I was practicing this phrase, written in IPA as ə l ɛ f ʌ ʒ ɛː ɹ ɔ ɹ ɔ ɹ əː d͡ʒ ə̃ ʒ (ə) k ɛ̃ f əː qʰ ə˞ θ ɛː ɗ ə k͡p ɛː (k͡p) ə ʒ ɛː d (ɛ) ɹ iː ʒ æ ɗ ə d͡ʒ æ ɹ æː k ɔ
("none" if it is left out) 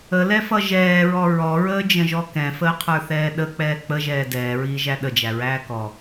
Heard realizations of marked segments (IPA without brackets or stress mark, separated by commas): ɔ, k͡p, ɛː